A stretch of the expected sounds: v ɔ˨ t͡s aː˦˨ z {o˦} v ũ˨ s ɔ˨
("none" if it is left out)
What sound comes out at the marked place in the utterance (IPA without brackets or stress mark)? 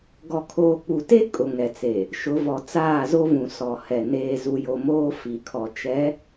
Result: o˦